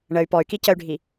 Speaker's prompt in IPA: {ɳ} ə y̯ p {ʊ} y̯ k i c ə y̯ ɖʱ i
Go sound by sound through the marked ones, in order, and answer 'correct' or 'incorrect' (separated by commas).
correct, incorrect